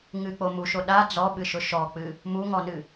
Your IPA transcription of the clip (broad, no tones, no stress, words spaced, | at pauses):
ŋɨk͡po muʃo ɗa d͡zɔɓɨʃʊ ʃɔk͡pɨ | muŋɔnɨ